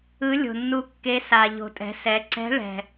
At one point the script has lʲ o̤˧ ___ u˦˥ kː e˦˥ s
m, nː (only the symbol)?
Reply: nː